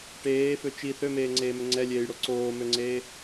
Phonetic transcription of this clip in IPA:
ʈ eː f ø t͡ʃ i θ ø m eː ŋ͡ǀ eː m ø ŋ͡ǀ ɛ lʲ eː j ɽ o ǀ oː m ø ŋ͡ǀ eː

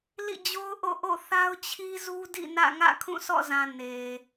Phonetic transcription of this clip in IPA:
l ḭ˦˨ d͡ʑ o˦ ʊ̯ ʔ o̰˦˨ ʔ o̰˦˨ θ a˦ ʊ̯ t͡ɕʰ i˦ z u˦ d ḭ˦˨ n ä̰˦˨ ŋ ä̰˦˨ kʰ ũ˦˨ s ɔ̰˦˨ z ã˨ n e˨

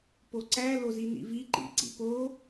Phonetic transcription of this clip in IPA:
p o ǀ æ l o z i n ḭ v i ǃ ḭ ǀ ḭ p o

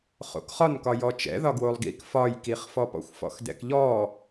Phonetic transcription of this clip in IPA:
χ o̰ k χ ɒ n k ɒ j ɔ t͡ʃ ɛ̰ ð ɒ ɡ w o lˠ ɡ ḭ k f ɒ j k i χ f ɔ p ɔ̰ xʷ f ɔ̰ x d ɛ̰ k ʎ ɔ

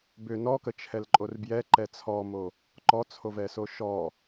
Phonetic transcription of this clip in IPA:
b ʏ n ɔ k ə t͡ʃʰ ɛ l ǃʼ o r b j ɛ ǃ ɛ t͡sʰ ɔ m o | ǃ ɔ t͡sʰ o v ɛ s o ʃ ɔ

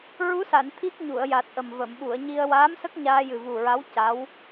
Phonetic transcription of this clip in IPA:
ɹ u˧˥ s a˨˩˨ n t̪ʰ i˦˥ k̚ ɲ u˨˩˨ ə̯ j a˨˩ t̚ ʔ ə˨˩ m v ə˨˩˨ m ɓ u˨˩˨ ə̯ ɲ i˧ ə̯ w aː˧˥ m s ə˦˥ k̚ ɲ aː˧ j ɨ˨˩ v u˨˩ ɹ a˧˥ w c a˧˥ w

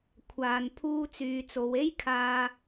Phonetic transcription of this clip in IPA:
kʷʰ aː˨ n pʰ uː˧ t͡s yː˨ t͡s o˨˧ w e˥ j kʰ aː˧

